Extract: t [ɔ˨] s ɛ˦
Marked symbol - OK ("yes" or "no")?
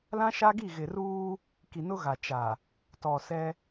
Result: yes